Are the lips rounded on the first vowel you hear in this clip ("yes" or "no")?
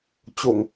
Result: yes